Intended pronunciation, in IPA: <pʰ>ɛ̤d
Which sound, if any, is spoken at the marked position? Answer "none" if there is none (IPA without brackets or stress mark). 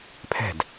pʰ